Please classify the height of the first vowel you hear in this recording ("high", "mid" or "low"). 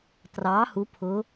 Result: low